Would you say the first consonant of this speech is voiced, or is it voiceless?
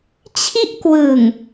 voiceless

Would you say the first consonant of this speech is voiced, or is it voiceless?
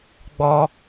voiced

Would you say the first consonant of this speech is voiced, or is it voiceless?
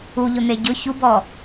voiced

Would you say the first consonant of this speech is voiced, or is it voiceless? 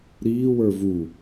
voiced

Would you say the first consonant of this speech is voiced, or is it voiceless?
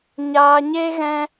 voiced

